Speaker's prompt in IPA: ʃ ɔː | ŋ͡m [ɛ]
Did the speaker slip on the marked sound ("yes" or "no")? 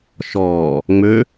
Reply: yes